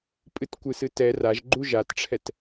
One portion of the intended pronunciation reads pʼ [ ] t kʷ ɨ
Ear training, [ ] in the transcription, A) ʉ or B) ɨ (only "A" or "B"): B